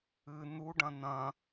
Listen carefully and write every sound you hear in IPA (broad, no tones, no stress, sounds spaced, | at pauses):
ɨ n̪ u ɖ ɐ̃ n̪ ɐ̃